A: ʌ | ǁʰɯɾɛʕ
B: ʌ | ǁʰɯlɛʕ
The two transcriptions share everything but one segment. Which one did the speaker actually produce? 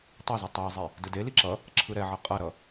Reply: A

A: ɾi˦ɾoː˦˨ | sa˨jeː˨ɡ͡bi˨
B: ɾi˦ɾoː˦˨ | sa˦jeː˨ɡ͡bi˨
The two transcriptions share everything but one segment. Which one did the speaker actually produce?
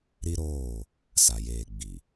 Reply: A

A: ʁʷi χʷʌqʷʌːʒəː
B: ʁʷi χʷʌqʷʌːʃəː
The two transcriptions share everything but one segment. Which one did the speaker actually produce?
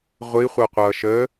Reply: B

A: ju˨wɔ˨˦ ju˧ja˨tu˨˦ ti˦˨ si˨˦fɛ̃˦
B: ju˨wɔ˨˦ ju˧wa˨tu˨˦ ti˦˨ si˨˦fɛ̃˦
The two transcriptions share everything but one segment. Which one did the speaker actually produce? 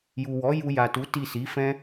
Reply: A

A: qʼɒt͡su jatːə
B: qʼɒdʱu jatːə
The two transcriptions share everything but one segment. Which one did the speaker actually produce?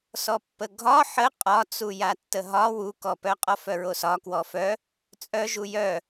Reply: A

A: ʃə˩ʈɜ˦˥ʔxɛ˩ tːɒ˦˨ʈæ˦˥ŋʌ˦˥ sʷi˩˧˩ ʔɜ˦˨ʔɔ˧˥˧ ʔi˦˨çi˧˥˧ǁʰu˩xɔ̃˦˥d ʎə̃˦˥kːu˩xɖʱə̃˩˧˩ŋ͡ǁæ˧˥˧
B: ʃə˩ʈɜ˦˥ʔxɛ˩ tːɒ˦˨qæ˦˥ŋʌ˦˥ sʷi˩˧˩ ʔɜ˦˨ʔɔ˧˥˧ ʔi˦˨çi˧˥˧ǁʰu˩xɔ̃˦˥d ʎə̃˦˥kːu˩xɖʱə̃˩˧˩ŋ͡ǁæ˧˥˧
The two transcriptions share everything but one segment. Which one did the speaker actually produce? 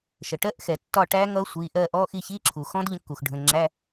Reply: A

